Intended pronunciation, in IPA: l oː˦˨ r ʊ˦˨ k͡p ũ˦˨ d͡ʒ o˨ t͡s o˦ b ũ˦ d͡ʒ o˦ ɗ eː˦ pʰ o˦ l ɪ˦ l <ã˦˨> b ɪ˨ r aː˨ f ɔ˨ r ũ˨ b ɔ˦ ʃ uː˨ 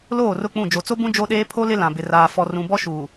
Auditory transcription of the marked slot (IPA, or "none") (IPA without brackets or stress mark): ã˨